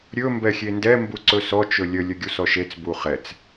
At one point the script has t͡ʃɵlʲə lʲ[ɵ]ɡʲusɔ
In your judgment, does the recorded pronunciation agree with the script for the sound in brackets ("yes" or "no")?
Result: yes